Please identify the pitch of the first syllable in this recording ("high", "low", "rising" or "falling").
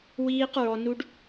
high